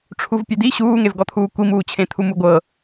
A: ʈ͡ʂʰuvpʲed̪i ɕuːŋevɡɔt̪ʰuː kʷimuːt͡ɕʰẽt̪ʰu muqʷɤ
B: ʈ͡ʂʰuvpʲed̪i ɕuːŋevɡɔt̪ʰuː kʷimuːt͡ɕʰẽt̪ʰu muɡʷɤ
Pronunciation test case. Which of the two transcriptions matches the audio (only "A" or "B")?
B